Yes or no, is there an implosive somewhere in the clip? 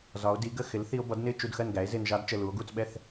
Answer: yes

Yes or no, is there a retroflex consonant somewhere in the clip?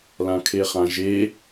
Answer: no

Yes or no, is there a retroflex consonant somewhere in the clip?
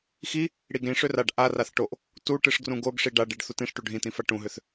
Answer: yes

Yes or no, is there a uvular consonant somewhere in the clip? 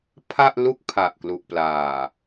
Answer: no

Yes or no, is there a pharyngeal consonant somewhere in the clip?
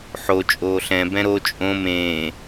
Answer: yes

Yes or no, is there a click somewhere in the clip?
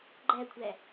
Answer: yes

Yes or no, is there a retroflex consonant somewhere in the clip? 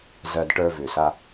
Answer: yes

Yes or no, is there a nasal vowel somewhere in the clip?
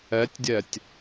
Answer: no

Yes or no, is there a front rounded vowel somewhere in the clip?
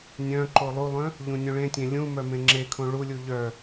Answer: yes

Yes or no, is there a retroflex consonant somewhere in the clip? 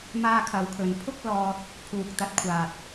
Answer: no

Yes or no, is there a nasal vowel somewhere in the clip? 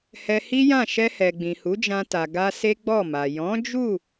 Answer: yes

